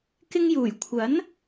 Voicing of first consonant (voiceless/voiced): voiceless